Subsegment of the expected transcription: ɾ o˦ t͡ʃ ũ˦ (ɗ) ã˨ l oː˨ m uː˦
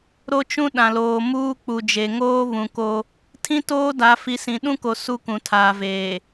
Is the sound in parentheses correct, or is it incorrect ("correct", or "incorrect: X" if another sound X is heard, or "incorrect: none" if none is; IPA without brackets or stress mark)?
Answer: correct